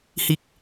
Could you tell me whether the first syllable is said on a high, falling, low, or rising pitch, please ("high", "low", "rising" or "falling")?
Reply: low